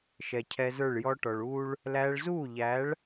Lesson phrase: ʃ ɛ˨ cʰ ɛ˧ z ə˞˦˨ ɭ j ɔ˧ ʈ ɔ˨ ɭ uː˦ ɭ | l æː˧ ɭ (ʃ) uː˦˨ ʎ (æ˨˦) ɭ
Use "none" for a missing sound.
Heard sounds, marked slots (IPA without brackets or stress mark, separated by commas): z, æ˨˦